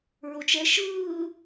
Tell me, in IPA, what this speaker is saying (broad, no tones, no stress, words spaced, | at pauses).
ɹot͡ʃɛ ʃɯː